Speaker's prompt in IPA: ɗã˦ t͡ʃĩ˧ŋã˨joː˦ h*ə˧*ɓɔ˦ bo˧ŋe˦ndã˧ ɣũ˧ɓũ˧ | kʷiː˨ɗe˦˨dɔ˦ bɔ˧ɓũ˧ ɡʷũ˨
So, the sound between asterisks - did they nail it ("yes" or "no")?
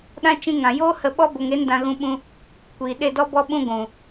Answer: yes